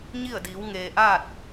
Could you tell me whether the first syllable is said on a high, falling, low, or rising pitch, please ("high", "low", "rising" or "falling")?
falling